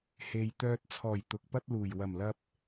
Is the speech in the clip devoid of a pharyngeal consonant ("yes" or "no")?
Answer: yes